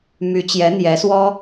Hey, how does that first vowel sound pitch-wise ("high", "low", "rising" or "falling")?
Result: rising